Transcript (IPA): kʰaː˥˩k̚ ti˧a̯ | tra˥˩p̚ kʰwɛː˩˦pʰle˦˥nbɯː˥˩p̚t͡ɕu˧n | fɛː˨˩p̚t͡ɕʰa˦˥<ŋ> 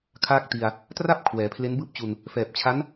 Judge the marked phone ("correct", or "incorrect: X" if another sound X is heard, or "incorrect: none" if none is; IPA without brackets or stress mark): incorrect: n